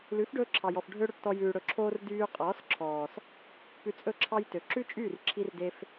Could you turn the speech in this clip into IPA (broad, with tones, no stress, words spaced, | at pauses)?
lʉ˨˦fɖɵː˧ǁʰɑ˨jɔ˨f ɖʱø˦ɽɵ˧ʈtɔ˧ jʉː˨ɽɵ˨ǁʰoː˧r dyː˧qʼɔː˨˦sǁʰɔː˨s | pʉ˧t͡sʼɵ˦˨ǁʰɑ˦jtø˨ ǁʉ˦t͡ʃʼyː˦˨r ǁʰi˧rde˧f